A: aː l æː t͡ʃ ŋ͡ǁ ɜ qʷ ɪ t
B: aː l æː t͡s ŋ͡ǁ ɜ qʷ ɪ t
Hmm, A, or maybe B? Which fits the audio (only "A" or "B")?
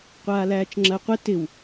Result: A